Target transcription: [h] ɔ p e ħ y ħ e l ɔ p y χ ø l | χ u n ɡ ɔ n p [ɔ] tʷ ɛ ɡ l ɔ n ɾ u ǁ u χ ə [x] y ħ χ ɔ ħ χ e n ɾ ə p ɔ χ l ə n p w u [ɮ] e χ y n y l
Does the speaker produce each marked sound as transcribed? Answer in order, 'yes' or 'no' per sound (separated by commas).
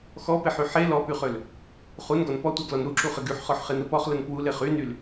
no, yes, no, no